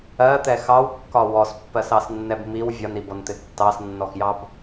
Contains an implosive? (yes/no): no